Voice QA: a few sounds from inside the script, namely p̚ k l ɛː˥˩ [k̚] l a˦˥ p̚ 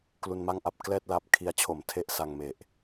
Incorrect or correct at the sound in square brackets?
incorrect: t̚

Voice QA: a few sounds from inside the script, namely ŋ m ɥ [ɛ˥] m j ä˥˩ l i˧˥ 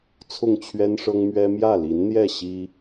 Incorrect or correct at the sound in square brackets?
correct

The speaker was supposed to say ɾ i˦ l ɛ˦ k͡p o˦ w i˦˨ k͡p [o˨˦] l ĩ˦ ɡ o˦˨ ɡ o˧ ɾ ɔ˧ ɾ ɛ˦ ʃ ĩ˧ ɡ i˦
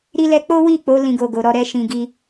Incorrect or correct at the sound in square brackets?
correct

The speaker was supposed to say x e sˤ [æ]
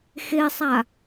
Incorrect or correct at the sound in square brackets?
incorrect: a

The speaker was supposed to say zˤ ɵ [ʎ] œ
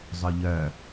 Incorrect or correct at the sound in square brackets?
correct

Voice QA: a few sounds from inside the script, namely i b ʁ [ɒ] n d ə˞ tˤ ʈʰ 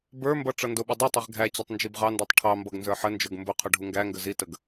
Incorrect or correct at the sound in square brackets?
incorrect: ɑ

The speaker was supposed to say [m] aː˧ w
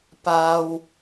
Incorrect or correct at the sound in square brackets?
incorrect: p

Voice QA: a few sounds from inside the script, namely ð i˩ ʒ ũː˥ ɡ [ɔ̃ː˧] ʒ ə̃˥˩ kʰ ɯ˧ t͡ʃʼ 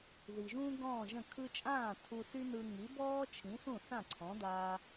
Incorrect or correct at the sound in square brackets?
incorrect: ɔ̃ː˥˩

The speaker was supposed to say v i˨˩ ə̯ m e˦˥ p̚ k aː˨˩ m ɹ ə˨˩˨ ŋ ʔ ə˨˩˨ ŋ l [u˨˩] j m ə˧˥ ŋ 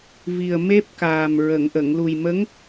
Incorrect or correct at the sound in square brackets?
correct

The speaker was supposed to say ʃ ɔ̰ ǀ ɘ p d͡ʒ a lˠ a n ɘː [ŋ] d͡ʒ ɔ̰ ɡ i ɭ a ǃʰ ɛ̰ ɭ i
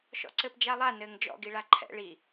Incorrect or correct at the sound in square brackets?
correct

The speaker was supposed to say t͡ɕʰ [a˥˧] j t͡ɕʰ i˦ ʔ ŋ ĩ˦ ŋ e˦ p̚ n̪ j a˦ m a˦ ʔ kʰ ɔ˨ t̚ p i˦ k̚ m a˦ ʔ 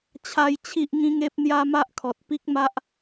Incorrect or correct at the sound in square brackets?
incorrect: a˦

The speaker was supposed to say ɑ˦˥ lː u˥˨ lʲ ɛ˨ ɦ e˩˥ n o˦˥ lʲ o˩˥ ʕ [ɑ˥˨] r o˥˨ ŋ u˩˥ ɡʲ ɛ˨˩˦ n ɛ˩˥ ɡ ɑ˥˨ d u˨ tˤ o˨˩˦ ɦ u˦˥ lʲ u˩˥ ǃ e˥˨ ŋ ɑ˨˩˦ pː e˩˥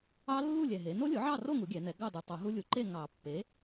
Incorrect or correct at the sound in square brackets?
correct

